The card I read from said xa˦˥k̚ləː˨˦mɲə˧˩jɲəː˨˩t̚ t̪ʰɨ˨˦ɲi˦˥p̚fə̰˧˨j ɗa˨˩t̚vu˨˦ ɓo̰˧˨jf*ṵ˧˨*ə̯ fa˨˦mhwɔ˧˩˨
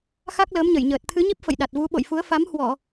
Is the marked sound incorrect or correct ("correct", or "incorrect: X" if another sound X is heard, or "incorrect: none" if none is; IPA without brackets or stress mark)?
incorrect: u˨˦